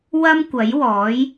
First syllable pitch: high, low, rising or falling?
high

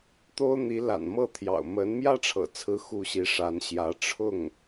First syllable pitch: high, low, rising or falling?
high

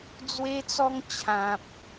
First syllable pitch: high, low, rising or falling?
high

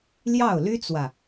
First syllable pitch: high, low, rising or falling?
falling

